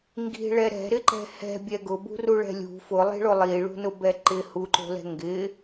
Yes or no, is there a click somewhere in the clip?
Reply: yes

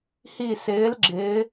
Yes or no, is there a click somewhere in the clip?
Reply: yes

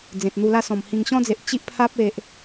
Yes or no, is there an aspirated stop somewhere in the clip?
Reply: yes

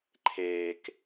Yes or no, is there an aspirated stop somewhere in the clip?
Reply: yes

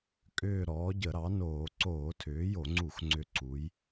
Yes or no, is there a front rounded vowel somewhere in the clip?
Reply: yes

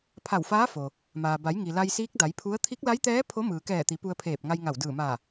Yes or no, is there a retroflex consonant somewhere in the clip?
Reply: no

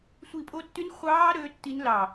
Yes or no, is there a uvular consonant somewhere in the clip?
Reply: yes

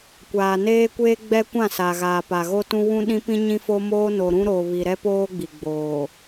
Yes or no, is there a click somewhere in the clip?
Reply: no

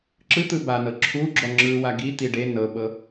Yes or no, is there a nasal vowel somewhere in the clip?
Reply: no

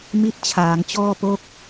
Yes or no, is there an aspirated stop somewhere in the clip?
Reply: yes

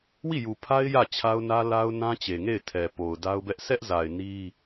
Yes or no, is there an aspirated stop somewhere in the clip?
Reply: yes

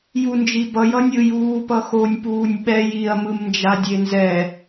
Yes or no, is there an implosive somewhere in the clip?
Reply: yes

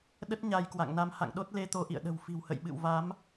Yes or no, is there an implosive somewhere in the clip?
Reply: yes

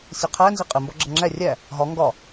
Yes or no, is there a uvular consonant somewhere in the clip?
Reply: yes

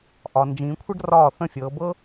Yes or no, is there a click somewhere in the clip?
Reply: no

